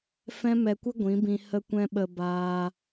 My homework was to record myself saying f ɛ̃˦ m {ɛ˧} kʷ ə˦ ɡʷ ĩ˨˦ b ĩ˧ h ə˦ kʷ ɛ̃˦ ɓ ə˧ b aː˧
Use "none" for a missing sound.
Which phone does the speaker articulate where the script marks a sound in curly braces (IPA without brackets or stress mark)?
ɛ˧